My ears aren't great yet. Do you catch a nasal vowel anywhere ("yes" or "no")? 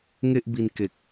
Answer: no